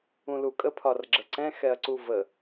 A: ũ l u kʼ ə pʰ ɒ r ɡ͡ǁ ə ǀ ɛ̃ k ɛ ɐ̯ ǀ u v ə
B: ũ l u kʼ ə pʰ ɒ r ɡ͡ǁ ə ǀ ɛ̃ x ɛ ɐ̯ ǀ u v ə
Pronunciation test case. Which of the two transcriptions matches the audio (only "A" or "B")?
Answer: B